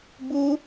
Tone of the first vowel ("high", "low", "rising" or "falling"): high